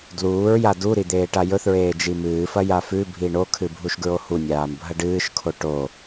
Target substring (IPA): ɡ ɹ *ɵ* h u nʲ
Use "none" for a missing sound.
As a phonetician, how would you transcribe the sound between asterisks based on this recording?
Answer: o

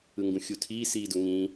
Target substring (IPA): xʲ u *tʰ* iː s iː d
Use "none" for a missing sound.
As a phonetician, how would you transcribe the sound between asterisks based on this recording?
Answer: tʰ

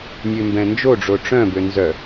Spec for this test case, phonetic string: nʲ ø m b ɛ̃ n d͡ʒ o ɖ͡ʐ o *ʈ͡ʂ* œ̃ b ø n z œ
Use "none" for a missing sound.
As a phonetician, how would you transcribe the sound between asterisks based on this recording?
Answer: ʈ͡ʂ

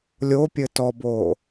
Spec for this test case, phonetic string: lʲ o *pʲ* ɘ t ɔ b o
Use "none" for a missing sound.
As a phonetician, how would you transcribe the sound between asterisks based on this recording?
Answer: pʲ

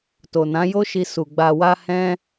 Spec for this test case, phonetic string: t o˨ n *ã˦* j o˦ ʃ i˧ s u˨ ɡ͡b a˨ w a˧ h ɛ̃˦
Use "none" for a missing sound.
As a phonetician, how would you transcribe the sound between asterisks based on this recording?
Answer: ã˨˦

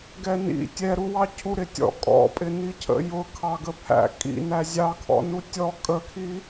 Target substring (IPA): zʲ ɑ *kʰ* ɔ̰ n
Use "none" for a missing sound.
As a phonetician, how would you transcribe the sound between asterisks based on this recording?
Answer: kʰ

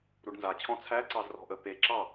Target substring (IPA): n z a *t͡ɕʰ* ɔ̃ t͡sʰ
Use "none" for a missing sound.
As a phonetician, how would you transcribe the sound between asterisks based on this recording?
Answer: t͡ɕʰ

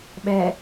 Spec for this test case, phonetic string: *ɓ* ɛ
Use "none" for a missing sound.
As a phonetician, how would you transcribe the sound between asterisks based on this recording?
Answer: ɓ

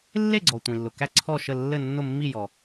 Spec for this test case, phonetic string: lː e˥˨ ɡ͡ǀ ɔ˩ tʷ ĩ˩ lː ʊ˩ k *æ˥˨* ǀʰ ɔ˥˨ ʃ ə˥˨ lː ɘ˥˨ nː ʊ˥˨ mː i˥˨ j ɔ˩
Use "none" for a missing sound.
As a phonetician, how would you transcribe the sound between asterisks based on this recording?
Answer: æ˥˨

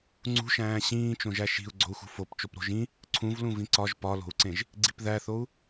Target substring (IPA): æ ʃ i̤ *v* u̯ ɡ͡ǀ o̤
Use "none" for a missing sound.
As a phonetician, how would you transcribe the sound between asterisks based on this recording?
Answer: none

